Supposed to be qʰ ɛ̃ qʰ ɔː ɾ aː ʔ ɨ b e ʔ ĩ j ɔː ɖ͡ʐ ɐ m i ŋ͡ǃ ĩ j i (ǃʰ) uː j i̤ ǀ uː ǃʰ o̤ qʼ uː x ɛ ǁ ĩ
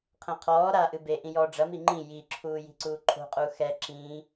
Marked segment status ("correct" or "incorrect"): incorrect